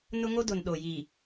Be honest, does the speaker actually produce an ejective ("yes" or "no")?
no